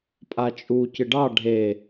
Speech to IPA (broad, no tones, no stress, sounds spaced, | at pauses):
pʼ a t͡ʃʼ u c ɨ ɖ ɑ ɖʱ e